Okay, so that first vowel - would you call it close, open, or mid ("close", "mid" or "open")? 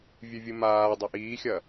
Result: close